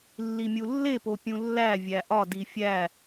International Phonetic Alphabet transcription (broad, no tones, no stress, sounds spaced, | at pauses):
lː i mʲ u lː e p o pʲ ũ lː æ vʲ æ ʔ ɒ d i fʲ æ